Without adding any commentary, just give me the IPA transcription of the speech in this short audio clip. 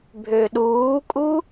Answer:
bʱøɗuːkʼu

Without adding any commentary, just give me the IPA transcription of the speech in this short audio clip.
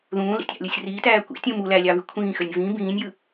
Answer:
ðũːlḭtʲɑ̰lʲosʲ ritæː kʷḭtʲũ mu lælʲɑvy kʷʰĩːxønʲ vĩ bĩːnʲjɯ

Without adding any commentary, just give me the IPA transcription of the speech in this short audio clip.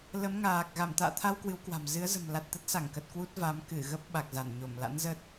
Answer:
lə˨˦mŋaː˨˩k̚ ɣa˧˩mt̪a̰ː˧˨t̪ʰa˧w kwɨ˨˦wkwa̤˨˩m zɨ˨˦ə̯zə̤˨˩mla˨˩t̚t̪ə˦˥t̚ sa˧˩ŋkə˨˩t̚ kwu˦˥t̚ va˨˦m kɨ˧˩ɣə˦˥p̚ ɓa˨˩k̚za˧˩nɲo˧˩m la̰˧˥nzə˦˥t̚

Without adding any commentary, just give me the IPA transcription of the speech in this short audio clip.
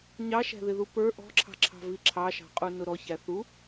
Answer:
ɲɑʃæ̤ðɪðu pə˞ ʔɔ̤ǁʰɑ̤ǁʰɑ̤vi ǁʰɑʃɑ̤qʼunʊ ɾɔçæθu

